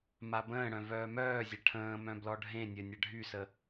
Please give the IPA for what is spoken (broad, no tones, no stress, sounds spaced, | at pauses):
m a b ə̃ː ɽ œ̃ v œː m œː zʲ ɐ ʈʰ ə̃ː m œ̃ b l ɔ ɖʱ ẽ nʲ œ nʲ ɐ ɖʱ y s ə